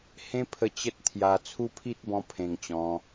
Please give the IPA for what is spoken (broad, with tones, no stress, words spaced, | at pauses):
hẽ˦pʰə˧ t͡ɕə˦t̚t̪ʰja˧ t͡sʰu˦pʰi˦t̚bɔ̃˧ pʰẽ˧ŋt͡ɕɔ̃˧